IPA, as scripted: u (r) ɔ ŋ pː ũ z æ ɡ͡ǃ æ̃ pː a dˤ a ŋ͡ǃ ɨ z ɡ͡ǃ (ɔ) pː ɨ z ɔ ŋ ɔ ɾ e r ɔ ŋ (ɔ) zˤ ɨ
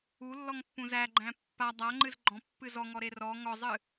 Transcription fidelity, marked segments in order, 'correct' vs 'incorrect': incorrect: lː, incorrect: ɔ̃, correct

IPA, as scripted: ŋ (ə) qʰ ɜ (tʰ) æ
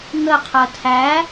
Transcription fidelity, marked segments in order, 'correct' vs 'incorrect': correct, correct

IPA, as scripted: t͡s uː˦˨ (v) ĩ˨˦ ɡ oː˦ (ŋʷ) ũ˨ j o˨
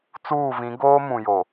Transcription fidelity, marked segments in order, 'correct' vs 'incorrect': correct, incorrect: m

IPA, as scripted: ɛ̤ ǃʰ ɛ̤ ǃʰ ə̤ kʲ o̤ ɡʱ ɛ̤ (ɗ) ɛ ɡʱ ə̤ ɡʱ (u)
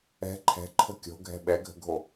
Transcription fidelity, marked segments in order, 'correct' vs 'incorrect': incorrect: ɓ, incorrect: o

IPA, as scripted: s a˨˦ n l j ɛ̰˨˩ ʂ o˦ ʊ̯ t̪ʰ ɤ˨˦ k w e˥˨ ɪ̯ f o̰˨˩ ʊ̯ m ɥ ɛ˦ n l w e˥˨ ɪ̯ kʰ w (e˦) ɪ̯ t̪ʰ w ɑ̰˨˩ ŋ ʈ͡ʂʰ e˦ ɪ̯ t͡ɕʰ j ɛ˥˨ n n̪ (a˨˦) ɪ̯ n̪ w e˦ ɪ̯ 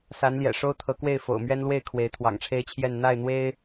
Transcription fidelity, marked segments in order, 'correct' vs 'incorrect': incorrect: e˨˦, incorrect: a˥˨

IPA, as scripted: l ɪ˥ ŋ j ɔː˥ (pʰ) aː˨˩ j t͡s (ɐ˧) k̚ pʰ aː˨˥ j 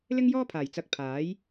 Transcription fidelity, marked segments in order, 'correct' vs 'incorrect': correct, incorrect: ɐ˨˥

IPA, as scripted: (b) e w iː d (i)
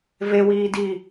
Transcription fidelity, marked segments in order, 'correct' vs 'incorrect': incorrect: v, correct

